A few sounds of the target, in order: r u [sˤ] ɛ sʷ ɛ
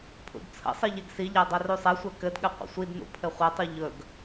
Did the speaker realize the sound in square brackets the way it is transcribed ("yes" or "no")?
yes